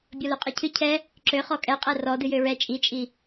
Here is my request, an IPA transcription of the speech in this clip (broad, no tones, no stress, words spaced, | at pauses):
bʲɔløqʼɛcʰɨ cʰɛ | ǁø χɔkʼɛ qʼɛrɔ dɨjøɹɛ t͡ʃʼit͡ʃʼi